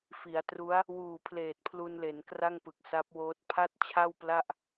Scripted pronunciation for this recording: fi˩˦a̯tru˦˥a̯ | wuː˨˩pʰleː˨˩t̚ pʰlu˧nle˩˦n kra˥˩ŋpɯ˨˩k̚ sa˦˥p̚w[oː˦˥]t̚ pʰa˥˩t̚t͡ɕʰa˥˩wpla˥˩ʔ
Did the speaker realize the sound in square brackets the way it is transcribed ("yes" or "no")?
yes